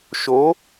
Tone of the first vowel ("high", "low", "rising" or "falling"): rising